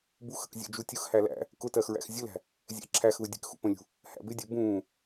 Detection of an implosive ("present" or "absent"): absent